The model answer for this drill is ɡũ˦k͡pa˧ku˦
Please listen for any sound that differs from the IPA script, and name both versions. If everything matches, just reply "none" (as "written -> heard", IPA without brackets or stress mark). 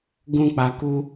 none